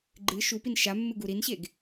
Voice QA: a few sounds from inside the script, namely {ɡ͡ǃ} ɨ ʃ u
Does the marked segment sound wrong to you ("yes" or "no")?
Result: no